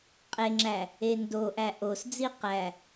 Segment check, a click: present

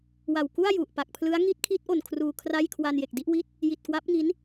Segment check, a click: absent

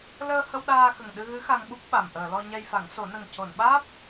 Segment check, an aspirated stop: absent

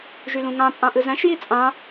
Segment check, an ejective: present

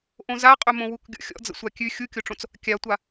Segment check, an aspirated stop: absent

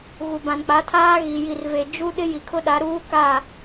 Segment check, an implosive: present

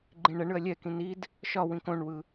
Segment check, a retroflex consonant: present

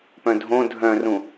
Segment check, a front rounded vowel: present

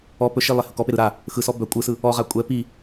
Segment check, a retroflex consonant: absent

